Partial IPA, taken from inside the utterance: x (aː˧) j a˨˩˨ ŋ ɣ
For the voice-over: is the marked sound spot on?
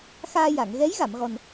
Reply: yes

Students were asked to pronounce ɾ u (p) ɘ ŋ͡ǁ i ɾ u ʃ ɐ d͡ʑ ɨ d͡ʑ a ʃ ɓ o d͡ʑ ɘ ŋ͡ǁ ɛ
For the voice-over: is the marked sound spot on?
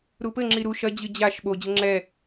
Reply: yes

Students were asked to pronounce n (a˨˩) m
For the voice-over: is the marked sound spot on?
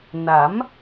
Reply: no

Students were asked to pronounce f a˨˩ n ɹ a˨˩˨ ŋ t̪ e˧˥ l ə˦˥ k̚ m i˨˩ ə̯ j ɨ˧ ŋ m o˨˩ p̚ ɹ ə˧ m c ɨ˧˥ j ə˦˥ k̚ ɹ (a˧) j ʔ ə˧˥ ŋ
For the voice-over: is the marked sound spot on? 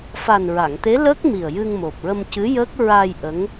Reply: yes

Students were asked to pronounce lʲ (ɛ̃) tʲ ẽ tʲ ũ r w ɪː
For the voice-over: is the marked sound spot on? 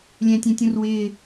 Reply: yes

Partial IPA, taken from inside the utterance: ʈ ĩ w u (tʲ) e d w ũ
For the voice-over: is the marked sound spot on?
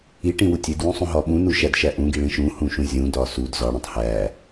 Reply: yes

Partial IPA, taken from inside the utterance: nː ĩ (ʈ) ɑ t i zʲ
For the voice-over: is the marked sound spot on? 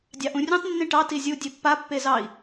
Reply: yes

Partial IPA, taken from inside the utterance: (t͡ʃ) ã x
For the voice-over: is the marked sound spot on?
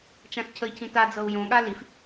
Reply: yes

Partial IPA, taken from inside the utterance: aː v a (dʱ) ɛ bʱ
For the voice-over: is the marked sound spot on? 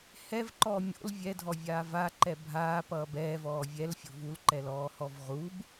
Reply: no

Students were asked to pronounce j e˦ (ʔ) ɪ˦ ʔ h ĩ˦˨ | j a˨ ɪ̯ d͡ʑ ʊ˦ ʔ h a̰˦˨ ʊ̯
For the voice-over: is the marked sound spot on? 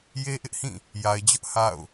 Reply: yes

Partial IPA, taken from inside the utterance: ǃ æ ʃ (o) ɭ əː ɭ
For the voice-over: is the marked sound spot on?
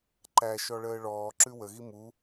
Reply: no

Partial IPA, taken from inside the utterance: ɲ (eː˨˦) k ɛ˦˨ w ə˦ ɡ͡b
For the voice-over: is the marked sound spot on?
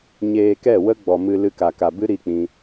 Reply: no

